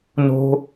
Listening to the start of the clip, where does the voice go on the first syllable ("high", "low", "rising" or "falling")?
high